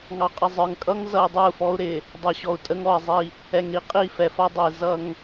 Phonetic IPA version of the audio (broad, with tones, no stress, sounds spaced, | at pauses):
ŋ ɑ˨ qʼ ɪ˨ zˤ ə˞˨ ŋ kʼ ʌ˦ ŋ z ʌ˨ i̯ dˤ ə˞˦˨ u̯ f ɔ˦ u̯ ɾ ɪ˨ | dˤ ʌ˨ ɕ ɔ˨ u̯ tʼ ə˦ ŋ ɔ˨ i̯ zˤ i˦˨ | ɛ˨ ŋ ɾ i˨ qʼ i˦˨ f ɛ˨ f ʌ˦ dˤ ə˨ i̯ z ʌ˦ ŋ